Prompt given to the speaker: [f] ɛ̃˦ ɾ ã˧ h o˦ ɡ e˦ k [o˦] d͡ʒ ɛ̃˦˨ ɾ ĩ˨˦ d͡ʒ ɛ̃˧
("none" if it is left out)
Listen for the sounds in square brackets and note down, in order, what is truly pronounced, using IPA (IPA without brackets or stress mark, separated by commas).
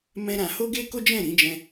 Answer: m, o˦